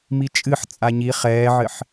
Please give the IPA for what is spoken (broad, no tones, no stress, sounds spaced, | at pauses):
m i t͡ʃʼ ɨ ħ t͡sʼ a ɲ i χ ɛː ʕ ɘ ħ